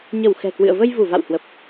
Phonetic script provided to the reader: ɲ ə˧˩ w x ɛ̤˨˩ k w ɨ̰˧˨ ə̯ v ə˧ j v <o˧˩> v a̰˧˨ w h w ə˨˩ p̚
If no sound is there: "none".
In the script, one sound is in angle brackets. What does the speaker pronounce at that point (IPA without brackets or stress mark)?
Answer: u˧˩